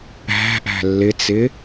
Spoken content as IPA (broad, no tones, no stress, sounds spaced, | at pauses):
æ̤ ʔ æ̤ lː ɪ t͡s ɪ